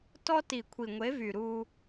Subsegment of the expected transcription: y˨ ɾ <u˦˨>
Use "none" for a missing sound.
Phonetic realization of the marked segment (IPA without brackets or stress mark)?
u˦